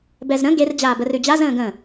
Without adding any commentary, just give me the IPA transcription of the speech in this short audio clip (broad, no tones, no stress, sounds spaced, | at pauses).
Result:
b ɛ z ɾ ə̃ ɡ e r d͡ʑ aː b ə r ʉ d͡ʑ a z ə̃ː ɡ ə̃ː